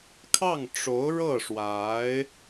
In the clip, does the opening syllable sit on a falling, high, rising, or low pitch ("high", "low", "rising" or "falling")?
falling